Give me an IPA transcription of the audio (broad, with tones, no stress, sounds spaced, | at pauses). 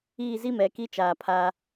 iː˦˨ z i˦ m ɛ˨ k i˦ t͡ʃ aː˨ pʰ a˦